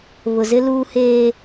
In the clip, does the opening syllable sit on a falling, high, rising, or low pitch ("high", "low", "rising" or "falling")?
low